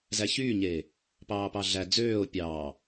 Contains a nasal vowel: no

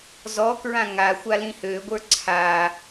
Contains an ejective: no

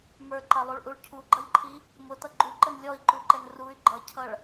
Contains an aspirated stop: yes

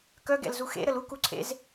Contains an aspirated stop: yes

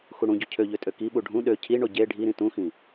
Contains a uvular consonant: no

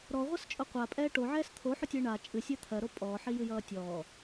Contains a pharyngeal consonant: yes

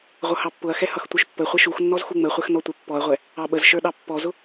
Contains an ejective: no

